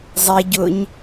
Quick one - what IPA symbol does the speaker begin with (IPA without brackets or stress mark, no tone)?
zˤ